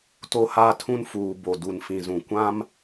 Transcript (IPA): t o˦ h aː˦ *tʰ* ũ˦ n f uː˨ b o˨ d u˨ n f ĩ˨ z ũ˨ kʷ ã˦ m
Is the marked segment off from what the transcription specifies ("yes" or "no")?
no